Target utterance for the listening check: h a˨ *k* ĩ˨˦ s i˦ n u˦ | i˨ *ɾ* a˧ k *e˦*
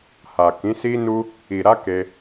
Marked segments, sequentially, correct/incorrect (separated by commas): correct, correct, incorrect